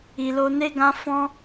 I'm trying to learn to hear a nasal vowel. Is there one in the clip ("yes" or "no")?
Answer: yes